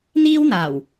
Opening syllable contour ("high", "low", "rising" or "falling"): high